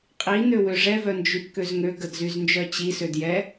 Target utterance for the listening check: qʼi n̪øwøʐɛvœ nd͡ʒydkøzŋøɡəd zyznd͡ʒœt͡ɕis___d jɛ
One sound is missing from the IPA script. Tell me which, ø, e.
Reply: ø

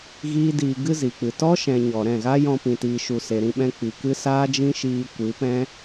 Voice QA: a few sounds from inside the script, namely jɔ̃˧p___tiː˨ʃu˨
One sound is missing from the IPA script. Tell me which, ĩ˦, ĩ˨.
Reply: ĩ˨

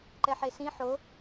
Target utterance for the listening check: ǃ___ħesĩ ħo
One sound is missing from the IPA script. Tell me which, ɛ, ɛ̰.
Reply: ɛ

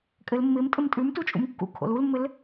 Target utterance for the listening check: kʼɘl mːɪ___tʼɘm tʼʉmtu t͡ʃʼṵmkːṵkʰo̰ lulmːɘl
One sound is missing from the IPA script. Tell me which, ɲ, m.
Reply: m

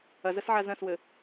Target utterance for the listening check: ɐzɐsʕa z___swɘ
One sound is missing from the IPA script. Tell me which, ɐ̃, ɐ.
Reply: ɐ̃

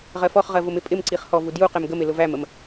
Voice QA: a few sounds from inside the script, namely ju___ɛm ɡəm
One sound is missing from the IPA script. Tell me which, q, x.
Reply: q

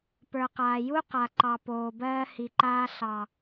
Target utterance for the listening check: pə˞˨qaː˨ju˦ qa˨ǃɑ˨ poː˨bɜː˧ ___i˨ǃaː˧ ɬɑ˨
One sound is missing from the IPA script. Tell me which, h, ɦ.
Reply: h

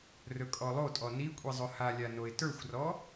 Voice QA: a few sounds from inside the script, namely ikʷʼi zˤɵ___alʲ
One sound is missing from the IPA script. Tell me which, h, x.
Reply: h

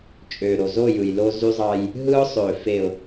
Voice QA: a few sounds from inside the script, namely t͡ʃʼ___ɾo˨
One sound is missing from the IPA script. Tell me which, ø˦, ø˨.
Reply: ø˨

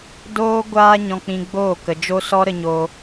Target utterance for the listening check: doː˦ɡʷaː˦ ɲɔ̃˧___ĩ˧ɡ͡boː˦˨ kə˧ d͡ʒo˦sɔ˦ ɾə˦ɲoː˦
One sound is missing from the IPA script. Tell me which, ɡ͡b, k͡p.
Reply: k͡p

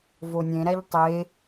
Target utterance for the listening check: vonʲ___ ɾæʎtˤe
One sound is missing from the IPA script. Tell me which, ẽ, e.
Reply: ẽ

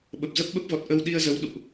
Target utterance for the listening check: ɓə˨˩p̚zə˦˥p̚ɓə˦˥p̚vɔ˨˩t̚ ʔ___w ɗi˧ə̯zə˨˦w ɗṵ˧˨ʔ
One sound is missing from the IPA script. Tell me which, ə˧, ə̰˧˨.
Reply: ə˧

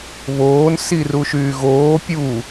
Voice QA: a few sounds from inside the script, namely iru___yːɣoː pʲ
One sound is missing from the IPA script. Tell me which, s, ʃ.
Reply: ʃ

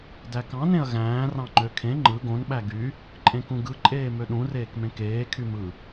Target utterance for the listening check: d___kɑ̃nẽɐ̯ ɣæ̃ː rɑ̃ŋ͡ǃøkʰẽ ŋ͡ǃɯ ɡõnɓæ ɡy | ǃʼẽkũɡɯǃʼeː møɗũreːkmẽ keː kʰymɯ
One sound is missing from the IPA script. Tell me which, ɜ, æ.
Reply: æ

